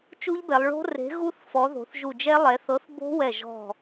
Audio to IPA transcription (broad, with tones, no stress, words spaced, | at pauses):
t͡ʃu˦˥ʎbɛ˩˧lˠ ɭo̤˦˥re̤˨˥ ɣu˦˥θ fɔ˩˧ ðo̤˩˧θʒu˧˩d͡ʒɛ˦˥ lˠɛ˩˧θɤ˨˥θ bo̤˦˥wɛ˧˩ ʒɔ̤˧˩